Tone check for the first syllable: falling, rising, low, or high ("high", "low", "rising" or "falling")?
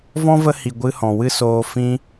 high